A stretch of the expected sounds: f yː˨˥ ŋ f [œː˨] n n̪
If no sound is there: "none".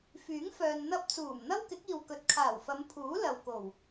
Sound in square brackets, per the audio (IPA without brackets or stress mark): œː˨